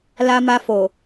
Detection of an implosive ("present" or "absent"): absent